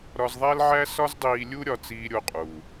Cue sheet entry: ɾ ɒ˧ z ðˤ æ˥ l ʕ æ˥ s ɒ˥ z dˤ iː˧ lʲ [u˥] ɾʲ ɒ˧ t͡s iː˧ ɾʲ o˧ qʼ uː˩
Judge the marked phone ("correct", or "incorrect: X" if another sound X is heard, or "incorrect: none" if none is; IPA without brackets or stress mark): correct